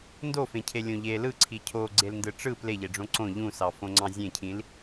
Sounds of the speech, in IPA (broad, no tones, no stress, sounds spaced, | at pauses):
n d o f ẽ cʰ e lʲ õ ʎ e l ɯ ǀʰ i cʰ o ɡ͡ǀ e l n d ɯ ʈ͡ʂ ɯ p l e ʎ e ɖ͡ʐ õ ǀ õ ʎ ũ s ɑ f õ ŋ͡ǀ ɑ̃ zʲ ẽ cʰ ĩ l